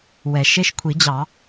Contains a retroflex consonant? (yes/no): no